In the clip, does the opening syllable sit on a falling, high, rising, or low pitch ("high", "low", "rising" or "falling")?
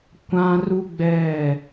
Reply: high